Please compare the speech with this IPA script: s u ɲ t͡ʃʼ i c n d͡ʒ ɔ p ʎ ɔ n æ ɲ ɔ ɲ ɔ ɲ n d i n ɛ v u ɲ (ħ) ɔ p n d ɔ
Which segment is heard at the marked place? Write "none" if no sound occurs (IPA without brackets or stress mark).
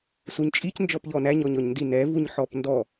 ħ